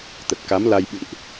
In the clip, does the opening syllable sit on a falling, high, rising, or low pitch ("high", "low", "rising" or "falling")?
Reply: low